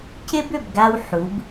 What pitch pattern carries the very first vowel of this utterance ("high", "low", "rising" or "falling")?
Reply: high